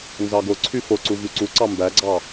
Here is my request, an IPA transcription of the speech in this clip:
n z ɑ ɡ o ǀʰ y f o ǀ u v y ǀ u ǀ ɑ m b æ ɡ͡ǀ ɑ

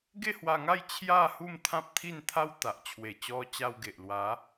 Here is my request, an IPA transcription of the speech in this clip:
ɡ e˥˧ h w a˧ ŋ a˥˧ j t͡ɕʰ j a˥˧ h u˥˧ m t̪ʰ ã˦ p̚ t̪ʰ i˥˧ n t̪ʰ a˦ w t̪ a˨ ʔ t͡ɕʰ w e˨˩ t͡ɕ ɔ˧ t͡ɕ a˧ w ɡ e˨ ʔ l w a˨˦

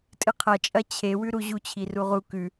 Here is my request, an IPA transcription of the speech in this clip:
tʼ ɨ qʰ ɐ t͡ʃʼ ɐ t͡ɕʰ e w ʉ ɾ u ʑ u t͡ɕʰ i r u ʁ u k ʉ

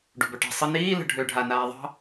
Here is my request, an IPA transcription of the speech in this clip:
ɖ ṳ b œ ʈ æ̤ sˤ ə n iː l ə̤ ɖʱ ø ɖʱ a n aː ðˤ ɑ̤

